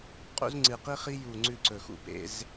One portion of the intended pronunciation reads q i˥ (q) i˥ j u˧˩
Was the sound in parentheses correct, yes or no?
no